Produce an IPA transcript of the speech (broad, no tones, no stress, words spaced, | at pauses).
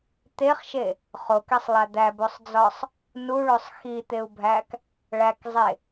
t̪eχʃe | χokesˤlˠæ d̪æbosˤd͡zɒsˤ | nuɭosˤ xit̪eu̯bʱæk | ɭækzˤe